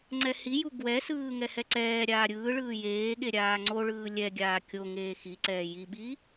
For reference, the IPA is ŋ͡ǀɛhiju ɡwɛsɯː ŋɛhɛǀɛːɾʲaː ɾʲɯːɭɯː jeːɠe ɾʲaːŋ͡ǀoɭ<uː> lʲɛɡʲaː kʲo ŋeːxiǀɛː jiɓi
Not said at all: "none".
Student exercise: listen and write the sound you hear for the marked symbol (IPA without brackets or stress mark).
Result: ɯː